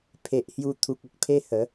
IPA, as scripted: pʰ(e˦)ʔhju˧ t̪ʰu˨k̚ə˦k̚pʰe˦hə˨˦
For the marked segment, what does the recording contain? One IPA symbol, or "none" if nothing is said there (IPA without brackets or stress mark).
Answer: e˨